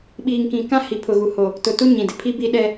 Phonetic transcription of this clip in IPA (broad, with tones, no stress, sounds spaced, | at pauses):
ɓ iː˨ ŋ k ĩ˨ k ã˦ h i˨ pʰ ʊ˨ ɣ u˨ h o˨ | t ʊ˨ t u˦ ɲ ĩ˨ d ɪ˨ pʰ i˦ b i˦ ɗ ɛ˦